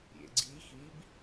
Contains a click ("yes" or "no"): yes